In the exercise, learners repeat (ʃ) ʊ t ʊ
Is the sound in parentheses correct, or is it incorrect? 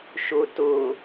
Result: correct